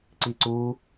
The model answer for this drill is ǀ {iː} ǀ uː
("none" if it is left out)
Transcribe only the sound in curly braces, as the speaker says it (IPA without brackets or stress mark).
iː